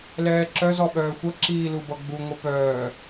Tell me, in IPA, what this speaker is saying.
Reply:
lɛːǁœz ɔɓœːxʷʌ ǁiːlubʌɡ͡bu ŋʷɛpœː

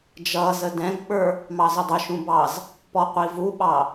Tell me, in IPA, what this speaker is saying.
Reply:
d͡ʒʌːz ədɛ̃ɡɓə˞ | mɑzʊdˤʊʃũ bɑz | pɔqʷivuɓɑ

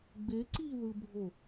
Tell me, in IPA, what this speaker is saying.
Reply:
ɡ͡be ǀiðɯbʱo

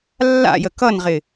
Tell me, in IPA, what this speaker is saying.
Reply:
lːa̰jə kʌnʁɪ

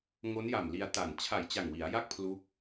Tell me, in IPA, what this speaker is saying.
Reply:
ŋo˦˥nja˨˩mli˧a̯ ta˨˩n t͡ɕʰa˨˩jt͡ɕa˨˩ŋ wi˩˦a̯ja˥˩k̚ pʰlu˦˥k̚

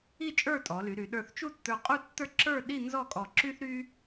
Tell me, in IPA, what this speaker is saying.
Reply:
i˥˧t͡ʃʼə˞˥˧tʼɔ˩˧ly˩˧ ɾy˩˧ɗə˞˧θt͡ʃu˥˧tːə˞˧ qʼu˥˧tːə˞˥˧ǁə˞˥˧ɗi˥˧ nzɔ˥˧kʼɔ˧ǁy˥θɾy˥

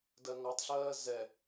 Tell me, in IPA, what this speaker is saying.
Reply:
dɜŋɔtˤɬɜː zɛ

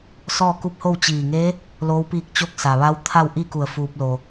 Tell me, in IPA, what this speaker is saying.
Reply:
sɔː˥˨ku˧˥p̚ho˥˨w t͡ɕiː˧˩ŋe˧˥ | loː˧˥w piː˥˨k̚ t͡ɕo˥˨k̚sa˩ ʋa˧˥wt̪ʰa˥˨wʔi˥˨ku˧˩ə̯ fuː˧p̚lo˩

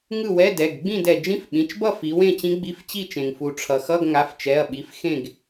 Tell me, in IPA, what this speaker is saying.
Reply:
ŋɯ˥˨wɛ˧˥˧dɛ˩˧˩ɡ ɡ͡bĩ˥˨dɛ˩ d͡ʒĩ˧˥˧fɓĩ˩˧˩t͡ʃbʌ˥˨ fi˩˧wẽ˥˨t͡ɕĩ˧˥ ɡ͡bi˧˥˧ft͡ɕi˥˨t͡ʃẽ˩ŋ fu˩ ʈ͡ʂʰʌ˩xʌ˧˥˧ɡ ŋa˩˧˩ft͡ʃɛ˩˧˩ɐ̯ɓi˩˧˩f xẽ˥˨ɡ

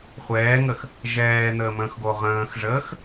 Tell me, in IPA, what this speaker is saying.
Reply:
χʷɛːŋəx | ʒɛːn̪əːmə̃ːxɡo ʁə̃ːxʐəːx

